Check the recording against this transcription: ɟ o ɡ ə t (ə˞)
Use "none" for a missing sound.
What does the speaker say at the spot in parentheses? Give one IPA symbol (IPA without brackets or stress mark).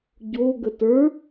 ə˞